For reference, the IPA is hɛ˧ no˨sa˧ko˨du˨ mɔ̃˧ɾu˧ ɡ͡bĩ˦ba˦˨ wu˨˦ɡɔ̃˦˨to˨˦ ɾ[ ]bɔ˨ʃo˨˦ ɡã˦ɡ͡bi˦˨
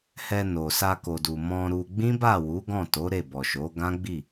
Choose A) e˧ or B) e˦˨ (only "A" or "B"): B